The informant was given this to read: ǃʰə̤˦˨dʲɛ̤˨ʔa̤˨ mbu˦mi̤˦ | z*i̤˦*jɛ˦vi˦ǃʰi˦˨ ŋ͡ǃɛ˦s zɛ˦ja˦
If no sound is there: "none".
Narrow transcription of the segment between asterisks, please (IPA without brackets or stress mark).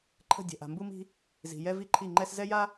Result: i̤˨